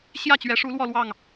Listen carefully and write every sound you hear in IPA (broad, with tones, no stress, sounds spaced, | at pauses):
ɕ j ä˥˩ t͡ɕ ɥ ɛ˧˥ ʂ u˧˥ l w ɔ˥˧ l w ɑ˥˩ ŋ